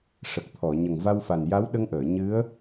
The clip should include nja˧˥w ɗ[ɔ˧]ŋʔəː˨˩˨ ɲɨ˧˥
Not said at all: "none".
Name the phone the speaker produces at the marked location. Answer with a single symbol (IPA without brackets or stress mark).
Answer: ə˧